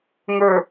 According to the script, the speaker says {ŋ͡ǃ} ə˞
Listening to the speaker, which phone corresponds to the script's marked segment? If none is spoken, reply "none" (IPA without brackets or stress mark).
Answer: ŋ